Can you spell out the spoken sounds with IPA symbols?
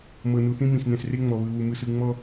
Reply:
m ɤ˨ n u˨ θ ĩ˦ m ĩ˨ s n ɛ̃˨ s r e˦ ŋ͡m ɔ˨ β ɯ˨ w u˨ m ɯ˨ s ɯ˨ ŋ͡m ɔ˦

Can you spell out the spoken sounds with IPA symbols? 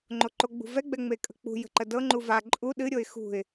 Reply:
ŋ͡ǃ o ǃ o ɡ͡b ṳ v ɛ ɡ͡b ɛ ŋ͡m e kʼ ə̤ k͡p ṳ j ə̤ ǃ ə d ɤ ŋ͡ǃ u v a ǃʼ u ɗ ɨ ɾʲ o ɪ̯ x ṳ ɪ̯

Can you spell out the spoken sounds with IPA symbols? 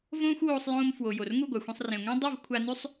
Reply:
v õː˦ xʷ w oː˧ sˤ j õː˧ m f w o˨ j o˨ r ŋ u˦˨ ɡʷ a˨ xʷ ẽ˧ sˤ r ẽ˨ ŋʷ ẽ˦ dˤ i˦˨ v kʷʰ a˧ n ʉ˦ sˤ

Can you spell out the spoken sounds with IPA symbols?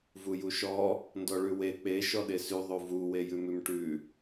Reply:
v u j u ʃ ɔ | n d ɔ ɭ ʉ w e k͡p e ʃ ɔ ɗ e s ʉ ðˤ o v u w e j ʉ m ʉ m ʈ ʉ

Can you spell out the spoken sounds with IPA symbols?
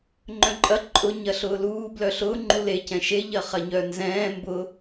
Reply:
ŋ͡ǃ œ̃ ǃʼ ɐ ǃʼ ʊ ɲ ɐ ɬ ʊː l uː b l œ ɬ ʊː ŋ͡ǃ u l e c ɛ̃ ʃ e ʎ ɐ χ ɐ ɲ œ n z ɛ̃ː m b ʊ

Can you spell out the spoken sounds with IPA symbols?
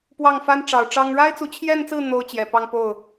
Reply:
p w ɑ˥˩ ŋ f a˥ n ʈ͡ʂ ɑ˨˩ ʊ̯ ʈ͡ʂ ɑ˥ ŋ ɻ a˥ ɪ̯ t͡s u˧˥ t͡ɕʰ j ɛ˥˧ n t͡s ɹ̩˥˩ n̪ o˥ ʊ̯ t͡ɕ j ɛ˨˩ p ɑ˥˧ ŋ p o˥˩ ʊ̯

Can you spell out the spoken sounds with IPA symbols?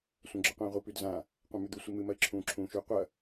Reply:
sʷ ɐ̃ ɡ͡ǁ ɵ qʷ ẽː ʁʷ i p ʉ d z ã | qʷ ã m ʉ d̪ u sʷ i m ɨ m ɐ ɪ̯ ǁʰ ũː ǁʰ ũː ʃ ʉ qʷ ɐ

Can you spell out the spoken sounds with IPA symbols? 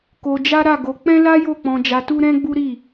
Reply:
k o˧ d͡ʒ a˦ ɾ a˦˨ ɡ o˧ k͡p ɛ̃˦ l a˦ j o˦˨ k͡p ɔ̃˧ d͡ʒ a˧ t u˦ ɾ ɛ̃˦ ɡ͡b u˦ ɾ i˦˨

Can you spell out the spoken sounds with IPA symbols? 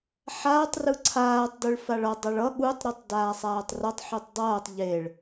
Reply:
ħ aː tˤ r ɯ ǀʰ aː tˤ d ɯ ɭ f a ɭ ʌ dˤ a ɭ ʌ ɠ u tˤ ɾ u tˤ d aː sˤ aː tˤ r ʌ tˤ ħ u tˤ dˤ ʌː tˤ ʎ e ɭ

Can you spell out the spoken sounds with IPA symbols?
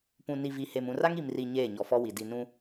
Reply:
p ũ˨ n i˨ v i˨ h e˨ m ũ˨ r a˦ ŋ i˨ m r i˨ ɲ eː˦˨ ɲ ɔ˨ f ɔ˦ w i˨ d i˨ n ũ˦

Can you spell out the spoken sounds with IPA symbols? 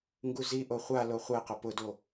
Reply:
ŋ ɡ u z i ʔ o χʷ a l o χʷ ɛ q ʊ p ʊ d o

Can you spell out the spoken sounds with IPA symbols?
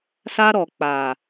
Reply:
s a˧ ɾ ɔ˨ k͡p a˨

